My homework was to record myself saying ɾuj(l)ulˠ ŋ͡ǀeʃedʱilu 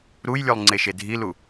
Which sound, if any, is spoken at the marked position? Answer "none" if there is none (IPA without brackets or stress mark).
lʲ